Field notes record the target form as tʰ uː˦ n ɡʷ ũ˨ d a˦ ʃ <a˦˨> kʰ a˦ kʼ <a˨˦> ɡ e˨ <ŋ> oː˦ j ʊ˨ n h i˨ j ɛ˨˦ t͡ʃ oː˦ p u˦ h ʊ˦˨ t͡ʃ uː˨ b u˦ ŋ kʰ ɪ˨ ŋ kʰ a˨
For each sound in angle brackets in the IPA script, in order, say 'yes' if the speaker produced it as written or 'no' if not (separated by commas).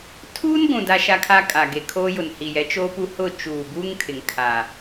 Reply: no, no, no